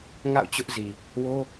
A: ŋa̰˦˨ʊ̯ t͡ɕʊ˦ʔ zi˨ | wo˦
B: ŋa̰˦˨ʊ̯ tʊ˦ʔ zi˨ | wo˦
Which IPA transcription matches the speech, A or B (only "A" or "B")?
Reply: A